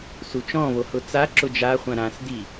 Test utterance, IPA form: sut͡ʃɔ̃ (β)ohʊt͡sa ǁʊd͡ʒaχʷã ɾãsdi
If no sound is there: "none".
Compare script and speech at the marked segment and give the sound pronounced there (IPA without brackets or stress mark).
β